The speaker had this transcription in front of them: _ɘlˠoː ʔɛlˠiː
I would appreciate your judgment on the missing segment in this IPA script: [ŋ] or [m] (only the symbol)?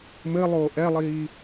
m